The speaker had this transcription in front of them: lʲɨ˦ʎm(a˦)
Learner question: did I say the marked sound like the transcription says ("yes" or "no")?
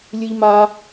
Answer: yes